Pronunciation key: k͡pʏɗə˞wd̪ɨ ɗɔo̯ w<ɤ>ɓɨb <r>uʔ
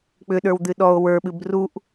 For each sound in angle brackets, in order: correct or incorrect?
incorrect, correct

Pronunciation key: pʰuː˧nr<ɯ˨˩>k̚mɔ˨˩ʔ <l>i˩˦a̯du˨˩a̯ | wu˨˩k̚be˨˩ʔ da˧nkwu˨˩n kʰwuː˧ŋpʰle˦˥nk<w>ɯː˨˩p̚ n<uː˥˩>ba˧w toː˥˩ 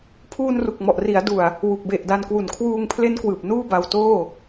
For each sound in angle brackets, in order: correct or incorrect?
incorrect, incorrect, correct, correct

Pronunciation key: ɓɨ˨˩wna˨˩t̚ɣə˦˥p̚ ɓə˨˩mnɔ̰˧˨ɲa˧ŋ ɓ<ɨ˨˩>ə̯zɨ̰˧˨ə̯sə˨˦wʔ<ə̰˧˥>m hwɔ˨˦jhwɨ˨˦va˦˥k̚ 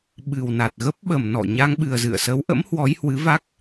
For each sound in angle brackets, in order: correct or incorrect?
correct, correct

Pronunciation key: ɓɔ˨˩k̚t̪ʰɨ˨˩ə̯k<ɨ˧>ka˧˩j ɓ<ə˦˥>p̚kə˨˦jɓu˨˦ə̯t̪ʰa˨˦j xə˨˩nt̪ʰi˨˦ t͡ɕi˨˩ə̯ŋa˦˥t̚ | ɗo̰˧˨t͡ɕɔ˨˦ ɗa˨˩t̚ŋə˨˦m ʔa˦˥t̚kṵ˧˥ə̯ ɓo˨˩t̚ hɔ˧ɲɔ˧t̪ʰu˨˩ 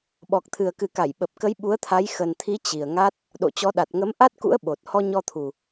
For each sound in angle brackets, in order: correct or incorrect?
incorrect, incorrect

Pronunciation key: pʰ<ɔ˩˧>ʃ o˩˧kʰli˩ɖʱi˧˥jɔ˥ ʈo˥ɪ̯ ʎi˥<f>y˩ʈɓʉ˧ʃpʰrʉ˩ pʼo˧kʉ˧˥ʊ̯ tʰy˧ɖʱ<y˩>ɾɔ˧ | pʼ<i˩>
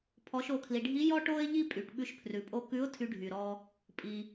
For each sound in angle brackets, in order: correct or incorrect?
correct, incorrect, correct, correct

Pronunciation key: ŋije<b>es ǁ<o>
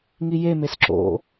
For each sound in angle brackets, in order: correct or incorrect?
incorrect, incorrect

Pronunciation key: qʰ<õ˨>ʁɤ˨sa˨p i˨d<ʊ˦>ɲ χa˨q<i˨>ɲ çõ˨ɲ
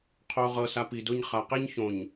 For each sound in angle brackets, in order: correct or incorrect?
incorrect, correct, incorrect

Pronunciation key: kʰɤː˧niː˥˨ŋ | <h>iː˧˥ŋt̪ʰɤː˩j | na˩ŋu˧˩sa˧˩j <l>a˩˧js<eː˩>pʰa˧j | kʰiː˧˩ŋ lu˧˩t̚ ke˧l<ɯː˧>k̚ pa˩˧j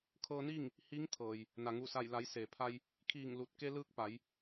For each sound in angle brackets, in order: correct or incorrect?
correct, correct, correct, correct

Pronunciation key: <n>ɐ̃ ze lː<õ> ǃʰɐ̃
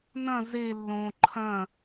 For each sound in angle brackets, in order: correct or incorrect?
correct, correct

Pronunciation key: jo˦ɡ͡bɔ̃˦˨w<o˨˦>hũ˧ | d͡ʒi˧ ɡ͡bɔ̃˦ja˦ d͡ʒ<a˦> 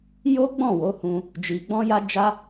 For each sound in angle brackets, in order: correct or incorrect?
correct, correct

